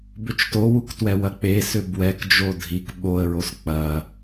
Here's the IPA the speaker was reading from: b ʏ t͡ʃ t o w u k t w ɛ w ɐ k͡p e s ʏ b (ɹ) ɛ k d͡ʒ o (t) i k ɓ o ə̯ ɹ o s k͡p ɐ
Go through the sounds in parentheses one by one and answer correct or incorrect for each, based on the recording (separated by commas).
incorrect, incorrect